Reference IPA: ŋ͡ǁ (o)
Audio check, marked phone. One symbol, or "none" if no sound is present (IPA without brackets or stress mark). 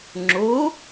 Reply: o